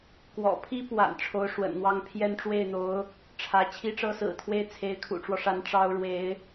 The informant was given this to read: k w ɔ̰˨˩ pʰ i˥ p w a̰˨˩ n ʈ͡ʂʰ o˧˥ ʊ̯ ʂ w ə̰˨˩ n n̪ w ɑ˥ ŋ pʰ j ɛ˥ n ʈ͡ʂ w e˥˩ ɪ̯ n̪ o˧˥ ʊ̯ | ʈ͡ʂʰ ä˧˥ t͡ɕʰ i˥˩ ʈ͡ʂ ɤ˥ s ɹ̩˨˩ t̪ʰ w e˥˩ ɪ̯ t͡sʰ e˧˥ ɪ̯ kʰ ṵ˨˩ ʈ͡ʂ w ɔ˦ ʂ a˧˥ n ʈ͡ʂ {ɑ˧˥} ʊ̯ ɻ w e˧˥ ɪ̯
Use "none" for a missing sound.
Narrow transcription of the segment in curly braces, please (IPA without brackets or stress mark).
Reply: ɑ˥